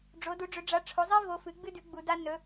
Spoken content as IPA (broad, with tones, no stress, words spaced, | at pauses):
ɖ͡ʐo˨˥du˨˥ɖ͡ʐɵ˨˥ ɖ͡ʐa˨˥ʈ͡ʂʰo˨˥zˤi˥ vo˨˥fɨ˨˥ɡ͡bɨ˥dʉ˨˥ ɡ͡bu˨˥da˥ nɵ˨˥